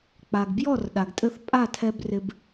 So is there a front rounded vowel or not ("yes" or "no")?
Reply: no